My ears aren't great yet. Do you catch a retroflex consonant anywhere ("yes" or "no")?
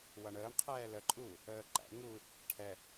yes